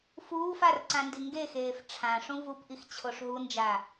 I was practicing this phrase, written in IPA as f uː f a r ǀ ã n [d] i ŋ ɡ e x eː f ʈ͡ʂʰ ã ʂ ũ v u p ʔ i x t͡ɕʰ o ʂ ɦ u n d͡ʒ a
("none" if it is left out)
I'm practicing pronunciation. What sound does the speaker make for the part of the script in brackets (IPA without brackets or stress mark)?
d